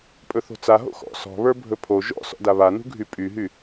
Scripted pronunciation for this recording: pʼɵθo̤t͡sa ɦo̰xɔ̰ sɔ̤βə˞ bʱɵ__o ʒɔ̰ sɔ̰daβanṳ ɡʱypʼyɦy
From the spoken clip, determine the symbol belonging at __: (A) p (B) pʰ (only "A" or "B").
B